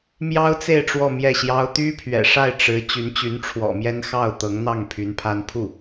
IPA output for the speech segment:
mjɑ˥ʊ̯t͡se˥˧ɪ̯ ʈ͡ʂwɔ˥˧mjɛ˥˩ɕjɑ˥ʊ̯ t̪y˥pʰɥɛ̰˨˩ʂa˥˩ɪ̯ ʈ͡ʂɻ̩˧˥ t͡ɕy˧˥nt͡ɕy˧˥nʈ͡ʂʰwɔ̰˨˩mjɛ˥n xɑ˥˩ʊ̯ t̪ɤ˧˥ŋn̪ɑ˥˩ŋ pʰy˧˥npʰa˥n pʰu˥˩

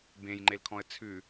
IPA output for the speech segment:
bẽjŋ͡ǃelkʰɔ̃ə̯ t͡sʰʉ

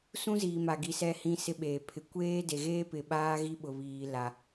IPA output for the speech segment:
sũ˦ziː˨ma˨ ɡi˨sɛ˨˦ hĩ˦sɪ˦ɓeː˨ pʰɪ˨kʷeː˦ de˨ɣeː˦ pɪ˨ɓaː˦ ɣi˦ɓʊ˨βiː˨ la˨

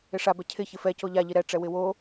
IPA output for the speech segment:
ɪʂa bɛcʰɪ çɪfɛ coʎa ʎiɾɛ ʈ͡ʂɛwɪwo

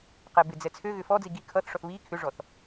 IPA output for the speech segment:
qɛbɪd͡zɛ t͡sʰøɣʏ fɔd͡zi ɡi kʰʌθʂɔθ βi kʰʏʐɔθ

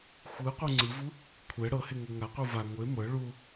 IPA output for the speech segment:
xʷɯqʷɯ ŋ͡ǀɯvu | kʷʰɛ ɽɤheŋɤ ŋaqʷɯ va ŋʷe mɤ ɭu

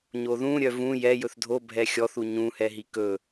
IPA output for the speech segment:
ɲoðũ ɾʲœvũ jɛ jɵθdʱo bʱɛxʲɔθ uɲũhɛ ɦikɵ

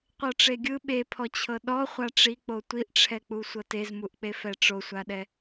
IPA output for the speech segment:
qʷɤʈ͡ʂeɡʲɯ ɓepʰɔt͡ɕʰɤ ɗɔ χʷaʈ͡ʂik͡po tʷiʔʈ͡ʂʰɛk͡pu sʷɤtezmuʔk͡pe fɛʈ͡ʂosʷaɗɛ

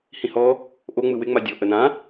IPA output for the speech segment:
hĩhɔ | ʔo ŋ͡mɯwɪ ŋ͡madʲo ʔənã

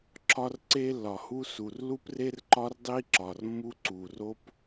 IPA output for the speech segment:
ǁɒ˥rǀe˥lːɒ˩hu˥ su˩rlu˥pre˥r ǃɒ˥rdˤi˥ ǁɒ˩rmːu˥ ǀu˩ro˥p

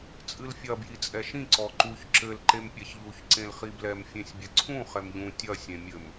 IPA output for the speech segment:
t͡sʼɨlfʲɐ bjit͡sʼɛʃĩ ǀɔǃuç ǁɘl ǃempʲaçʎuç ǀẽlχiblɛm fʲẽsʲbʲɘǀʰũ χɛmʎũ tʲɐ sʲẽmʲɘm

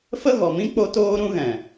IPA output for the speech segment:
fə˦ɣɔ˨mĩ˦ k͡po˦toː˦ ɾũ˦ɣɛ̃˨

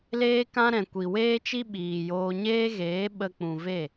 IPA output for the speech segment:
leː˦kã˦ɾɛ̃˨ kʷi˨weː˦t͡ʃi˦ ɓiː˨joː˧ɲeː˦ɣeː˨˦ ɓə˧k͡pũ˨ve˦˨

